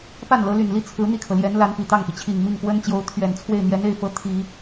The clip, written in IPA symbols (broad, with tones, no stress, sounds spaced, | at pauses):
p a˥˩ n l ɤ˧˥ l y˨˩ n l i˥ t͡sʰ ɹ̩˧˥ n̪ i˥˩ kʰ ɤ˩ l j ɛ˧˥ n l a˧˥ n p i˨˩ t̪ ɑ˥˩ ŋ p i˩ t͡ɕʰ i˨˩ ŋ m i˥˩ ŋ k w ə˥ n t͡ɕ j o˧˥ ʊ̯ t̪ʰ ɥ ɛ˨˩ n t͡sʰ w e˥˩ ɪ̯ n̪ j ɛ˧˥ n e˥˩ ɪ̯ f ɤ˧˥ t̪ʰ i˨˩˦